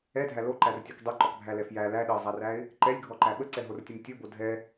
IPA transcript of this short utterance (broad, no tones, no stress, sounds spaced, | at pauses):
ɛ dʱ æ l o ǃ æ r tʲ ɔ k dˤ ɛ ǃ ɔ k bʱ æ l ɛ f j æ l æ ɗ ə ɪ̯ zˤ æ r æ ɪ̯ | ǃ ɛ lʲ ɡʱ ɔ ǃ æ ɓ ə ǀ ɛ ɦ o r tʲ ə m tʲ o b o dʱ ɛ